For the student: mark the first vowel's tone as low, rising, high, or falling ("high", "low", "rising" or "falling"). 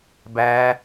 high